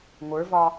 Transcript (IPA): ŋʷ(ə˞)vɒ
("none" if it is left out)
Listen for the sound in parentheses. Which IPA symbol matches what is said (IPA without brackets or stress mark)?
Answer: ə˞